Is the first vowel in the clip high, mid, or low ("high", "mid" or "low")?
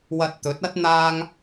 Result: low